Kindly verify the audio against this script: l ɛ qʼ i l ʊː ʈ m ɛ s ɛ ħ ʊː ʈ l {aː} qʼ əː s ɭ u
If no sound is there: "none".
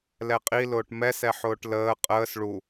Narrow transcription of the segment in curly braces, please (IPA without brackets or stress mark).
əː